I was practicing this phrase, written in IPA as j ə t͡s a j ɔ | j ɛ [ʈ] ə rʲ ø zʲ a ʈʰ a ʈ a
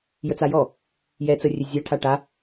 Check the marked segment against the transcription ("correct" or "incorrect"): incorrect